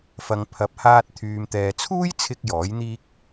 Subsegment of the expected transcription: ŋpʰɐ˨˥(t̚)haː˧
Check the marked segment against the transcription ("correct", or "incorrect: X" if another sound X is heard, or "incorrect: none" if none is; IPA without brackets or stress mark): incorrect: p̚